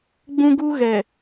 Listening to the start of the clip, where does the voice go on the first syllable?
high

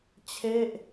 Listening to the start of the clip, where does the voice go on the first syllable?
falling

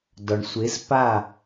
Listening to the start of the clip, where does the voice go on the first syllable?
low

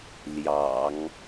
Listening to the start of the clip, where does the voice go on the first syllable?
low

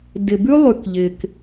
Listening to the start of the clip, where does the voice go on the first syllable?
low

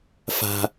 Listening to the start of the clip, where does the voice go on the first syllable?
low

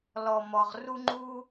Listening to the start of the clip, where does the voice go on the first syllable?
low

